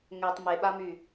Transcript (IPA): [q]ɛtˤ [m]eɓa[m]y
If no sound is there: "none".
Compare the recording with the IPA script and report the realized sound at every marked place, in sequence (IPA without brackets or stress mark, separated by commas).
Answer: ŋ, m, m